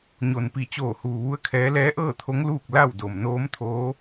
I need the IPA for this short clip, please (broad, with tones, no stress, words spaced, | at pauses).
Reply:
ɲo˩npi˧˩ t͡ɕoː˧˩huː˩ʋu˧˥ə̯kʰɛː˧˥ lɛː˧˥ʔɤː˥˨t̪ʰo˧˥ŋ luː˥˨k̚ la˥˨wdo˩m noː˧˥mt̪ʰoː˧˥